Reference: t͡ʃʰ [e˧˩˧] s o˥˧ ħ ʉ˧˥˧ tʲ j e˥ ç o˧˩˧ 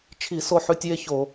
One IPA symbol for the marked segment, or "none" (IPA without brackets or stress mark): i˧˩˧